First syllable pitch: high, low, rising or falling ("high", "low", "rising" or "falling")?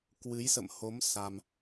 rising